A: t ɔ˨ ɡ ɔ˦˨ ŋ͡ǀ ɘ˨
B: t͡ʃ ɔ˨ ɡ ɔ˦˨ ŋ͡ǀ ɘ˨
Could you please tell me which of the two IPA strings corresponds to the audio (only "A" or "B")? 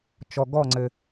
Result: B